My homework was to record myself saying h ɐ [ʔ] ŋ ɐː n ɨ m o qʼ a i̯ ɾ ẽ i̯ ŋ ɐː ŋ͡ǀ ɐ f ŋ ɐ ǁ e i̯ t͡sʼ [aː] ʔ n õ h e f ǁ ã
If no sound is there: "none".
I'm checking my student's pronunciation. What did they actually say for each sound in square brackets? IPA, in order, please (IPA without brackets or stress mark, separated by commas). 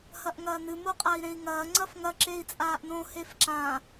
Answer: ʔ, aː